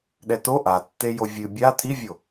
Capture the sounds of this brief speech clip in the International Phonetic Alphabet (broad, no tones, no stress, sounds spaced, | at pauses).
ɗ ɛ t o ʔ a tː e j o vʲ ɨ bʲ a t̪ʰ i vʲ o